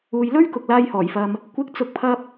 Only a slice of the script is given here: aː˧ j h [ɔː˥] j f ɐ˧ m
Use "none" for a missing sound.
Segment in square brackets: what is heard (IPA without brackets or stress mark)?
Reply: ɔː˨˩